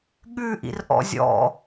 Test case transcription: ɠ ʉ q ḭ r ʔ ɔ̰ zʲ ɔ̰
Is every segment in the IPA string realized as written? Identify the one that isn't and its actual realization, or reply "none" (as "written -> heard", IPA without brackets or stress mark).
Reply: q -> ʔ